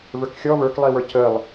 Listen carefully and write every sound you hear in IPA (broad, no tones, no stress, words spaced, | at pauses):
və˞kxʲɔ və˞klˠiwə˞ cʰəlˠ